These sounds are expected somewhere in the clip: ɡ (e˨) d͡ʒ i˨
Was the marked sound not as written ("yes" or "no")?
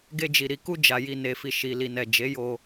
yes